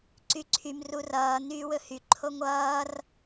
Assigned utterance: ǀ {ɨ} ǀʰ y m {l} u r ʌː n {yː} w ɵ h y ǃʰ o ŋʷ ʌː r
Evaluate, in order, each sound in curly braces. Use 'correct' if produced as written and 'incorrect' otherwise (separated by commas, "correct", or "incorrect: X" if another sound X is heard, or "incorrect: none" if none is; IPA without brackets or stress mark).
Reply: incorrect: y, incorrect: r, correct